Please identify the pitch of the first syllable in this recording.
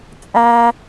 high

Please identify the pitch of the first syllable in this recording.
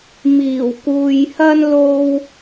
low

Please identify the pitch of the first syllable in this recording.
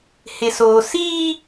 low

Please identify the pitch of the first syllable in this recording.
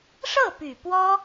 falling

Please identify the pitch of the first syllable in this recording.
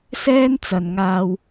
high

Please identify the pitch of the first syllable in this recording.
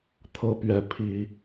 high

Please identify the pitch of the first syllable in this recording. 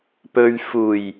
low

